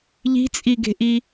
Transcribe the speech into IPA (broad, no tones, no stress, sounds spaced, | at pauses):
ʎ i̤ t͡sʼ i ɡ e̤ ʔ i